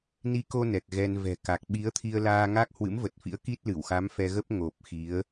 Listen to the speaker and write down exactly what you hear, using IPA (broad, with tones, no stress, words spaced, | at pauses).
ni˨˦ko˧ nɛ˨˩k̚ɣɛ˧nvɛ̤˨˩ka˨˩k̚ ɓi˨˦ə̯t̪ʰi˧ə̯laː˧ ŋa˦˥k̚ hwɨ̰˧˥mvə˨˩t̚fḭ˧˥ə̯ ki˦˥t̚lɨ˧˩wxa˨˦m fɛ˧ɣə˦˥p̚ ŋo˨˩p̚ xi˨˦ə̯